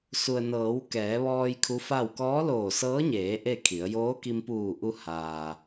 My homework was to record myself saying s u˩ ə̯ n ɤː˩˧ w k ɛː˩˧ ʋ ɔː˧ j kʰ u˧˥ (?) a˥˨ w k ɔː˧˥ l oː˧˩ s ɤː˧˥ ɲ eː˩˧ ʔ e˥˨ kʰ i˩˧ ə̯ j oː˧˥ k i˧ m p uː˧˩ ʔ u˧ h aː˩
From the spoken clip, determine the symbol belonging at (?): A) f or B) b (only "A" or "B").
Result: A